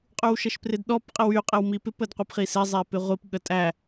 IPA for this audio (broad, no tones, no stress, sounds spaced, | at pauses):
qʼ ʉ w ʃ ə ʃ p r ɪ d ɗ ɔ p qʼ ɪ w y qʼ ɪ w m i p ɪ p ə d qʷ ɪ p χ i s e zˤ e p ɪ ʁʷ i p ɠ ə tʼ æ